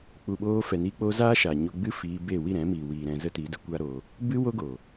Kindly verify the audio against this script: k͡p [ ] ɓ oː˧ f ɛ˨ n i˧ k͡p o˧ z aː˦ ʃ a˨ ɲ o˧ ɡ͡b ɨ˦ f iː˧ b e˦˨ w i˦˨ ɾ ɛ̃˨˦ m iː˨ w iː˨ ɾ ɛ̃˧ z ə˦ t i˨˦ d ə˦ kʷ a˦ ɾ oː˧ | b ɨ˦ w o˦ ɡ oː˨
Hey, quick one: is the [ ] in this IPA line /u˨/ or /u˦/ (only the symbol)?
u˨